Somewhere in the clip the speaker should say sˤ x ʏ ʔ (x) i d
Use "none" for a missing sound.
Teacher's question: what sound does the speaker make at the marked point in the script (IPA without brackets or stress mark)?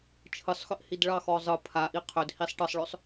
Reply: h